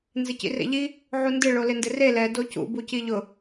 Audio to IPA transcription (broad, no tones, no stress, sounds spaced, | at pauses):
n z ɪ c ḭ r ḛ ʎ i | ʕ u n d ɪ ɭ o l ɪ n d ɪ r e l ɛ d o c ṵ b u c i ʎ ʊ